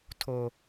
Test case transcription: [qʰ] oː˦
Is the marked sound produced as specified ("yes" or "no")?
no